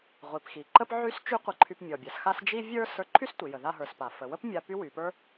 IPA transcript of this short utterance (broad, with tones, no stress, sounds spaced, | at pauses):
ʁʷ i˩ p x i˩ ǃ ə˥ p ʕ y˥ s t͡ʃ y˥ qʷ ə˧ ǃʰ y˧ p mʲ ɔ˩ bʲ a˩ s x a˧ s d͡ʒ i˥ vʲ ə˞˥ s ə˞˧ ǃʰ y˥ s tʷ i˩ j ə˩ ð a˧ ɦ ə˞˩ s p a˩ f ə˩ w ə˥ p mʲ a˧ p y˥ w y˩ p ə˞˥